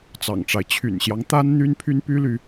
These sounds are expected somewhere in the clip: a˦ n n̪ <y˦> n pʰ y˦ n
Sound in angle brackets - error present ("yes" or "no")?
no